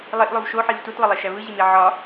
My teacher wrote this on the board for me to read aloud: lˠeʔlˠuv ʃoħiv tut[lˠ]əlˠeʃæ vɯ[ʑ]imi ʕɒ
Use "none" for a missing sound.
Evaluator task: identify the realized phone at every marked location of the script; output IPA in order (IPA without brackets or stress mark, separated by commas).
lˠ, ʑ